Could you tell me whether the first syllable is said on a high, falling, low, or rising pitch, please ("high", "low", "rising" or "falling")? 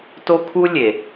high